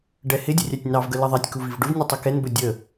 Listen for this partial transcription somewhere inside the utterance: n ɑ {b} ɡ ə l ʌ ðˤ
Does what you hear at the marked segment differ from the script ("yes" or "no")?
yes